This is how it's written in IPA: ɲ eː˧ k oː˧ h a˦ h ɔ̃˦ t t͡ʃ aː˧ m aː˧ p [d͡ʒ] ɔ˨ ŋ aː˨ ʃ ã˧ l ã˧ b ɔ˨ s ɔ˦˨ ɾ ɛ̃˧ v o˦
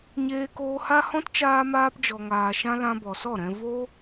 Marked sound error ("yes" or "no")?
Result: no